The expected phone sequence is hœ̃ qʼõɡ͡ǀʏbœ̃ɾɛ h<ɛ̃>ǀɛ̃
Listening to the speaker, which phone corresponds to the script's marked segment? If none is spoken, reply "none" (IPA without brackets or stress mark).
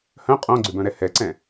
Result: ɛ